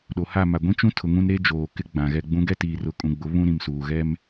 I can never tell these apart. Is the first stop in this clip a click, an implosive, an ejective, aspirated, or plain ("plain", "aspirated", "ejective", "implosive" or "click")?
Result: implosive